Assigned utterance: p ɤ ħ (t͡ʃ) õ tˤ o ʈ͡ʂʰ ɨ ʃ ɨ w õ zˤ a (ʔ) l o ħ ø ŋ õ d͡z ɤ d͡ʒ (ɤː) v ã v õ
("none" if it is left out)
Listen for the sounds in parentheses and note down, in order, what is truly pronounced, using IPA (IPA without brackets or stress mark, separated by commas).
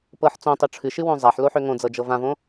t͡s, ħ, ɤ